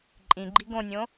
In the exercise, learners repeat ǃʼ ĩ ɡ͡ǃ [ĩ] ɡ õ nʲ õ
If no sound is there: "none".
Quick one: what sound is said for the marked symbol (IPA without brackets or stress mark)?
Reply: i